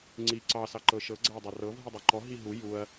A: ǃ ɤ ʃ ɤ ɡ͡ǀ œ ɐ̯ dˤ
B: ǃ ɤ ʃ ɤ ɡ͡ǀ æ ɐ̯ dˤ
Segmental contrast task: B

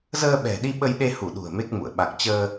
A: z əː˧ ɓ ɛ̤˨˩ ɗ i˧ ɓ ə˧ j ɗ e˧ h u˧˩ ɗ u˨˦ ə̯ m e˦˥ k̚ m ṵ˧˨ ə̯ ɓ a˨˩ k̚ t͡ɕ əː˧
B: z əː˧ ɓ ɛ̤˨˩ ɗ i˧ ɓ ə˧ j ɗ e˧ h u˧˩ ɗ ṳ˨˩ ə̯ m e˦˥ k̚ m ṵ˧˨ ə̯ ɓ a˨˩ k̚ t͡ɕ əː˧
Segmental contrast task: B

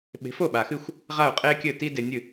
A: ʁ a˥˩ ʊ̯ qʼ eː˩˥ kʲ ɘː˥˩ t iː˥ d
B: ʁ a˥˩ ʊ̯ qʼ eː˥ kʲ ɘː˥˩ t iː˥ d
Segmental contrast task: B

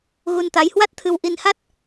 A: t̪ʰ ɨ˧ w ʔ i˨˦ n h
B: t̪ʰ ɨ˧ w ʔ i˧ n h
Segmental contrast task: B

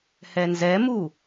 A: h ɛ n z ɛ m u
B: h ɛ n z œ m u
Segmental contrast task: A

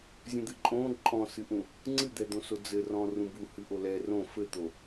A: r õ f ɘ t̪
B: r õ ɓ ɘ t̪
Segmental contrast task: A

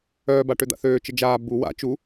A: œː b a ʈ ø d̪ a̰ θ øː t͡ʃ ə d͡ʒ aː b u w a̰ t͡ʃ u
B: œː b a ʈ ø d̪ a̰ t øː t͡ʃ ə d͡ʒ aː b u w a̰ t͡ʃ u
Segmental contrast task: A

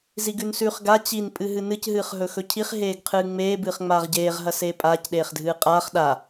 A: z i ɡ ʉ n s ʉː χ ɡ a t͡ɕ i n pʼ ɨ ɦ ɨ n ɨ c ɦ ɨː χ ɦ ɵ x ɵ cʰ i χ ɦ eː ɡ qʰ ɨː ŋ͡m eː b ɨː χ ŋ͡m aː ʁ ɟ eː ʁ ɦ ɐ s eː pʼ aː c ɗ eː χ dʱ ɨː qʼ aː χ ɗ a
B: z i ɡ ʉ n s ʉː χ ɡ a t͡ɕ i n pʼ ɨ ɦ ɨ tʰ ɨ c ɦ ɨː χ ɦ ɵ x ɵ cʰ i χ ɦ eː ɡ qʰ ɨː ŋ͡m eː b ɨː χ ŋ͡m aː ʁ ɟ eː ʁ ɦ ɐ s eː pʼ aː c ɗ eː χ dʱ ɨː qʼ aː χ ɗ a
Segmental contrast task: A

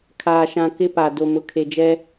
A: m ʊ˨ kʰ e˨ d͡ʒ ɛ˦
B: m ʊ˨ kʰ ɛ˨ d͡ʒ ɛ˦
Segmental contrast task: A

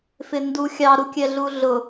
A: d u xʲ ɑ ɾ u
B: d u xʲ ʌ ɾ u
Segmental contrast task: A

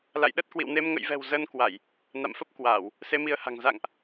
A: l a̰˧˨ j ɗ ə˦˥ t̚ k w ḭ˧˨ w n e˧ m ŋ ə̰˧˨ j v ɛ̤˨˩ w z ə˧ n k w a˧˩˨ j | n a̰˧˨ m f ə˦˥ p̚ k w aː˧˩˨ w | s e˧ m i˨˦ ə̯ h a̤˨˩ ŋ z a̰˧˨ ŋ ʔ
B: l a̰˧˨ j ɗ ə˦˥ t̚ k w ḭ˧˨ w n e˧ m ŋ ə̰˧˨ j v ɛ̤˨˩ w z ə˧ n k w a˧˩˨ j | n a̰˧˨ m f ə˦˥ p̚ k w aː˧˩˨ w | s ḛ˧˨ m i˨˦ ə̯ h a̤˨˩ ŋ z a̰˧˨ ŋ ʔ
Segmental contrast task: A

